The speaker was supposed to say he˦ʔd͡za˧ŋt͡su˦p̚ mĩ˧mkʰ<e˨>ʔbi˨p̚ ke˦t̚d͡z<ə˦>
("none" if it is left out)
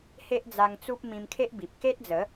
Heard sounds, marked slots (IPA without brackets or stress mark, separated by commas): e˦, ə˨˦